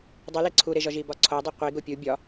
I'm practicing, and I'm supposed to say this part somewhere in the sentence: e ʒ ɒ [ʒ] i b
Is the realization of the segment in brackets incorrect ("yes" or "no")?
no